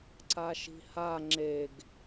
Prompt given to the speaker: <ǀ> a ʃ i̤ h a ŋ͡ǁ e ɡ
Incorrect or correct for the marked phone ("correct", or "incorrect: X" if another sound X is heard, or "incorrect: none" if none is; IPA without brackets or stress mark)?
correct